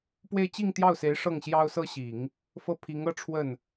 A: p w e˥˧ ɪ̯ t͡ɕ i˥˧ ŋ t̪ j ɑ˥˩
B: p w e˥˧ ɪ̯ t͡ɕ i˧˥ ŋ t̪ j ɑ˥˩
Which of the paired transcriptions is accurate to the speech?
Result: A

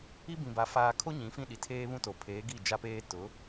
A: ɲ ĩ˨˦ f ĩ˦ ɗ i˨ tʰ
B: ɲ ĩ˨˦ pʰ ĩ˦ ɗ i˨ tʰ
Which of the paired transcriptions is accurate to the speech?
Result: A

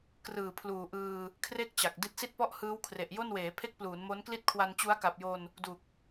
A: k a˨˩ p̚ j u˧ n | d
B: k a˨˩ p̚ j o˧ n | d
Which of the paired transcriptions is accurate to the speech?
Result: B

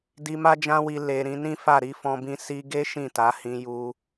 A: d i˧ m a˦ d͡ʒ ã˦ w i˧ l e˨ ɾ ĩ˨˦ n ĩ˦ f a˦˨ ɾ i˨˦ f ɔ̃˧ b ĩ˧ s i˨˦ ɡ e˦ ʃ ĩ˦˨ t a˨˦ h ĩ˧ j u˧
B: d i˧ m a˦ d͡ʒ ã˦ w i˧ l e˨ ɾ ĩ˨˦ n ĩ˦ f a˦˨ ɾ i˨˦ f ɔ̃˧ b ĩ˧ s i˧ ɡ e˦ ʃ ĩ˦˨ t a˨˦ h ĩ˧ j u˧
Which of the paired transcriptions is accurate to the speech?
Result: B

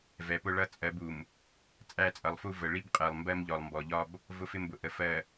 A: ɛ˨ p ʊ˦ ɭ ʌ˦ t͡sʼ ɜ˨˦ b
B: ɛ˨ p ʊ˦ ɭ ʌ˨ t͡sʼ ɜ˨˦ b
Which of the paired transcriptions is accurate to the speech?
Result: A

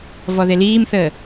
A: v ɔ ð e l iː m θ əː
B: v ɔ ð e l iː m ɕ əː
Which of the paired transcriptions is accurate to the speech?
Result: A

